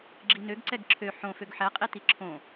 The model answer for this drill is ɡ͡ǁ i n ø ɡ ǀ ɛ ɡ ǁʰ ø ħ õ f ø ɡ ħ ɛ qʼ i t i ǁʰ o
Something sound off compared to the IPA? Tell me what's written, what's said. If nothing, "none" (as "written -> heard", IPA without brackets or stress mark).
o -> õ